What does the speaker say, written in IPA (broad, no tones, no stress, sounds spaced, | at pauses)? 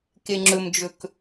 k e ŋ͡ǁ ɵ m d͡ʒ ɵ k